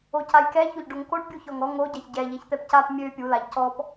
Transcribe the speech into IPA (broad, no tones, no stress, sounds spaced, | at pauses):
o c a j k ɛ ç o ʎ ɖ o ŋ k o ɖ bʲ u ç ɔ ŋ ɔ ŋ o ɟ a ç ɟ ɛ ʎ ɛ ç t̪ ɛ p c a p mʲ ø pʲ u l a ʎ c ɔ p